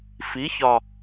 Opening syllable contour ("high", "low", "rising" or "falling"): rising